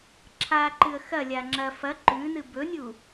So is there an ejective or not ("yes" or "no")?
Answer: no